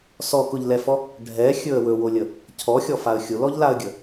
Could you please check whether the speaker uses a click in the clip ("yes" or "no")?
no